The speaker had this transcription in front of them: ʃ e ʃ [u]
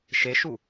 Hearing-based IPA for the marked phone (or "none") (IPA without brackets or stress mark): u